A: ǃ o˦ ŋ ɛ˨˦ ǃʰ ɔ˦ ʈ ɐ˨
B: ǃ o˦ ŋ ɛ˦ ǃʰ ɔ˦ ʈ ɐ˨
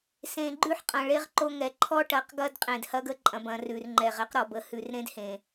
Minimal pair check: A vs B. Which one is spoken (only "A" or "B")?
A